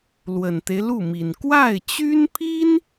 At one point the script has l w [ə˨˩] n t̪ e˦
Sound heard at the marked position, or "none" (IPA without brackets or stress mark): ə˨˩